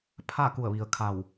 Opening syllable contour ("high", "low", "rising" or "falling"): falling